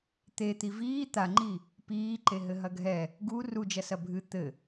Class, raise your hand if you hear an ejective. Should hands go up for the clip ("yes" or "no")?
no